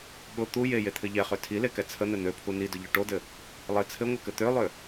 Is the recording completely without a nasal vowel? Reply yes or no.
yes